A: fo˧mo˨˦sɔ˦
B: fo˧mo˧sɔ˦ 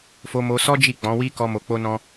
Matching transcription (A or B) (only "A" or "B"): B